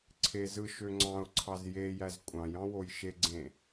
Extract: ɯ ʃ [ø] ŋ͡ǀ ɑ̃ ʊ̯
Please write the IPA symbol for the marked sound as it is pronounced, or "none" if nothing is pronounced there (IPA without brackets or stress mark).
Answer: ø